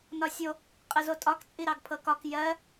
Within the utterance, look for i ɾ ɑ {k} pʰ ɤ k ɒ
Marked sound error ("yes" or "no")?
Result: yes